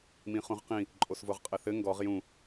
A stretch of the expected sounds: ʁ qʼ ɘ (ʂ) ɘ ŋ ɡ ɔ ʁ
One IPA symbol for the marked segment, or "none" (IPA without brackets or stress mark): θ